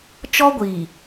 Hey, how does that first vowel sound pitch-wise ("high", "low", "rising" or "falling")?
high